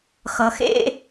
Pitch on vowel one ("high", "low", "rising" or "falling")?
low